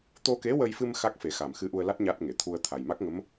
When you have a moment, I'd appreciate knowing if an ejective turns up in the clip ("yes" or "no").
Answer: no